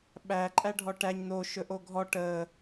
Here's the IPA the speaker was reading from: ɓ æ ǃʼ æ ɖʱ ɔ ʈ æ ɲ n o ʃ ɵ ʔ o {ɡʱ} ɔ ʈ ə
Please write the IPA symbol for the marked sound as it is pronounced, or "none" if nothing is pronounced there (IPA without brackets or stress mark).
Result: ɡʱ